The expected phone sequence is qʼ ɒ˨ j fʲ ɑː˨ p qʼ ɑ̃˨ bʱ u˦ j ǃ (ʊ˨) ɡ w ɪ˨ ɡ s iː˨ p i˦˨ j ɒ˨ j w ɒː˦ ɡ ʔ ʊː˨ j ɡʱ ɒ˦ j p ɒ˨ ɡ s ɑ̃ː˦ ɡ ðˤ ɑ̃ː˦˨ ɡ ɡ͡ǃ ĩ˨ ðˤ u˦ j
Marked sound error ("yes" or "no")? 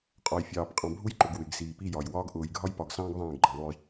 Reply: no